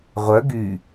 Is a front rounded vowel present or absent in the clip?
present